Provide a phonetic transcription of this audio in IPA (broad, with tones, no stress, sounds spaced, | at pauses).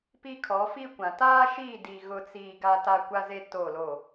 p i˦ kʰ ɔ˨˦ f i˦ kʷ ã˨ t aː˦ ʃ iː˦˨ d i˨ ɣ ʊ˦ t͡s iː˦ ɡ a˦ t a˦ kʷ a˦ z e˦ t o˦˨ l o˦˨